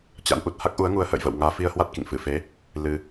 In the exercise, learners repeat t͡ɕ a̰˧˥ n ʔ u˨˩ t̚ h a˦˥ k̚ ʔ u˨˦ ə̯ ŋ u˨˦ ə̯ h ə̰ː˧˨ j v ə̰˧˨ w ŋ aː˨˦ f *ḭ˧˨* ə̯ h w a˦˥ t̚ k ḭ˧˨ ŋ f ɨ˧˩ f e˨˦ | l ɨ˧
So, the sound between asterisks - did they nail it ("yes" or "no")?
no